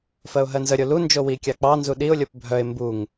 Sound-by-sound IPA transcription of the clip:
f ɜ ʊ̯ ɦ ɜ n z ə ɾʲ o l u n d͡ʒ o w i kʲ ɑ k͡p ɑ n z u ɗ i ʊ̯ lʲ o p bʱ œ ɪ̯ m b u ŋ

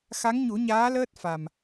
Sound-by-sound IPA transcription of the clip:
x a˧˥ ŋ ɲ u˨˩˦ ɲ aː˧˥ l əː˦˥ t̚ f a˨˩ m

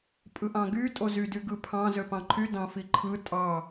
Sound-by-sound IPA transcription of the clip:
pʼ ɯ ʔ ɑ̃ ɡ y tʼ o z y d y ɡ ɯ pʰ ɑ̃ z ø p ɑ̃ ǃʰ y d ɑ̃ f i ǃʰ ɯ tʼ ɑ

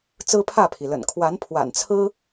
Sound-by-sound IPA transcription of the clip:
t͡s ɹ̩˦ pʰ ä˥˨ pʰ i˩ l ə̰˨˩ n kʰ w a˨˦ n pʰ w a̰˨˩ n t͡sʰ ɹ̩˦

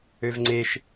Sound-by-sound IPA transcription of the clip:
ø v ŋ͡ǀ e ʃ

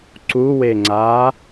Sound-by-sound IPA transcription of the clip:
ǀ u w e ŋ͡ǀ aː

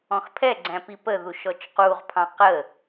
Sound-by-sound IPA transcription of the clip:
ɔ̃ x pʰ ɛ ɡ͡ǀ æ̃ p i p ə ð u ʃ ɔ t͡ʃ q u ʁ pʰ ɑ̃ q ə

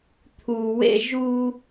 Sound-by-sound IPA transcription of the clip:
t̪ʰ u˨ w ḛ˧ ʒ u˧

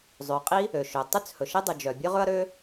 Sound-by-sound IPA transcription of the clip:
zˤ ø˩ qʼ i˥ | ø˩ ʃ ø˩ tˤ y˥ t͡s h ɵ˩ ʃ e˥ dˤ y˩ d͡ʒ œ˩ bʲ ø˥ ʁ ɵ˥ ɐ̯ ɾ ø˥

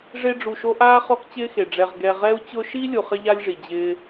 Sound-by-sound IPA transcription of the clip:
ʐ e˦ ɖ͡ʐ u˨ ʃ o˦ ʔ aː˥ χ ɔ˦ k t͡ɕ ɪː˦ x e˩ ɖ͡ʐ ɛ˨ ʁ ɡ ɛ˨ ʁ ɛ˦ u̯ t͡ɕ ʊ˦ ʃ i˥ lʲ u˨ χ ɪ˥ ʎ a˥ lʲ ʐ i˩ d͡ʑ ɪː˥

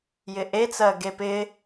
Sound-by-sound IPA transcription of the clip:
j ɪ ʔ e t͡s ɜ ɡ e p ɪ

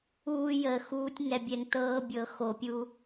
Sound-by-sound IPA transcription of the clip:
uː˦ j əː˧ x uː˦ tʲ ŋ ɛ˧ bʲ ɛ˧ ŋ t ɤː˦ bʲ ɤ˧ x o˧ pʲ u˦

